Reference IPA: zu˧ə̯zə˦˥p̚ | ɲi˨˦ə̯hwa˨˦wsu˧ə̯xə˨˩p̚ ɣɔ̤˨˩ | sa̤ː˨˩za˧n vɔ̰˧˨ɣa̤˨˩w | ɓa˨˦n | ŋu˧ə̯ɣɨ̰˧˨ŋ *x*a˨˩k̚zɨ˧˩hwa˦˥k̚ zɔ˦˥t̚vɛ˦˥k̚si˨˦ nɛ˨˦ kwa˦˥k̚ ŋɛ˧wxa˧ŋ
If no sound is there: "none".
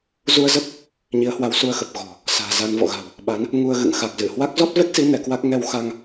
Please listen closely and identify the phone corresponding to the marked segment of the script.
x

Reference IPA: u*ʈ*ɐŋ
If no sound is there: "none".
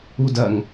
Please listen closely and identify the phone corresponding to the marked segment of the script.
d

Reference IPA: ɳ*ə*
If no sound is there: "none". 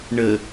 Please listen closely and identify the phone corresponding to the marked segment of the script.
ə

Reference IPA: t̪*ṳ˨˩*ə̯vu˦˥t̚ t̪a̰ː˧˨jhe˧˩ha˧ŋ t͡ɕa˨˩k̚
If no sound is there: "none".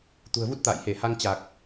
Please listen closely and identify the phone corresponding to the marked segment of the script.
ṳ˨˩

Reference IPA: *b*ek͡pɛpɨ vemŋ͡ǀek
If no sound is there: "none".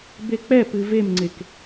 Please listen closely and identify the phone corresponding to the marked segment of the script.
b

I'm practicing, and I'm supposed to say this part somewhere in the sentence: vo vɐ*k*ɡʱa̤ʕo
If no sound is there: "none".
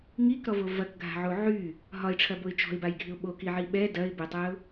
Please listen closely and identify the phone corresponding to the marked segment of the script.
k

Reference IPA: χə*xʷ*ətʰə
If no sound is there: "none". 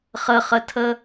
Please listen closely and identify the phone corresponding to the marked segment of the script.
χ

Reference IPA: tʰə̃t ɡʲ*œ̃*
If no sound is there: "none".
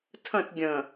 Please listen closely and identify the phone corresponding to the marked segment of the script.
ə̃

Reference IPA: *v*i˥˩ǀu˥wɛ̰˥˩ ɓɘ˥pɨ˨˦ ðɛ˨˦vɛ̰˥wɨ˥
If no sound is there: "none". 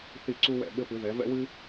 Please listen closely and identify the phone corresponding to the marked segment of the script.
θ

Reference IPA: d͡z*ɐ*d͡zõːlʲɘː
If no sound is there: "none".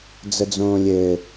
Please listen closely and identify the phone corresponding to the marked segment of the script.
ə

